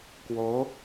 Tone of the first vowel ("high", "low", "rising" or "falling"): rising